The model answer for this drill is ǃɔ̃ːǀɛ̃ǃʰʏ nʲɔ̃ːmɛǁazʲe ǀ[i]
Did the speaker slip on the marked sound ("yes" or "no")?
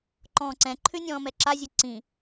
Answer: yes